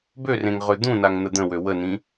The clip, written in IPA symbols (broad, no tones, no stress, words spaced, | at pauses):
børẽŋʁø d̪ũnaŋn̪ə d̪ə̃wø wənĩ